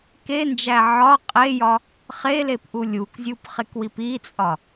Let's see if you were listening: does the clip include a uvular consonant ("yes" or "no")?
yes